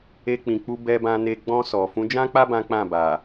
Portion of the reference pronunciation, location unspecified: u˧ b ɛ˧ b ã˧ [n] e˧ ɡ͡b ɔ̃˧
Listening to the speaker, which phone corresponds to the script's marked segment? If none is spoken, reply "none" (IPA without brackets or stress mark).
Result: n